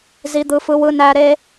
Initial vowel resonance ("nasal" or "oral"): oral